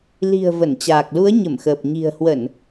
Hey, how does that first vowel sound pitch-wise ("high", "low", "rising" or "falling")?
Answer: low